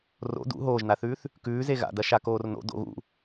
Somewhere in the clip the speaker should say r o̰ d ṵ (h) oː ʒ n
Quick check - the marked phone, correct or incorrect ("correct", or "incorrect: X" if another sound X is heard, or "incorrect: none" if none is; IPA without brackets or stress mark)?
incorrect: ɦ